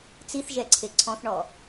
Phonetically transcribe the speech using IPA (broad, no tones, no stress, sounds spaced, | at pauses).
t͡s i θ ʒ ɛ ǀʰ e ǀʰ ɔ̃ θ ɳ ɔ